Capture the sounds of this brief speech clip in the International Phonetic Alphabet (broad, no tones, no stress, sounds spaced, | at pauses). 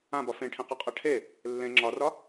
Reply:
ã b ɒ f ẽ ʈʰ ẽ q ɨ qʼ a ʈʰ e | lː ẽ ŋ͡ǁ ɒ r ɒ